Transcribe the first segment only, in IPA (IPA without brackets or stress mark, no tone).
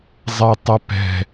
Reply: zˤ